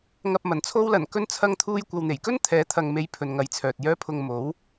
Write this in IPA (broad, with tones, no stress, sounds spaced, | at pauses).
ŋ ɐ˨ p̚ m ɐ˨˩ n t͡sʰ o˧ w l ɐ˨˩ n k ɵ˧ n t͡sʰ ɐ˧ ŋ t̪ʰ uː˧ j kʷ ɐ˨ w n̪ e˨˩ j k ɵ˥ n t̪ʰ ɛː˨˥ t̪ʰ ɐ˨ ŋ m e˨˧ j pʰ ɵ˨ n ŋ ɐ˨˥ j t͡sʰ œː˨ t̚ j œː˧ pʰ ʊ˨ ŋ m o˨˥ w